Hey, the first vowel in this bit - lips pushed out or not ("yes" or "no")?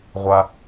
no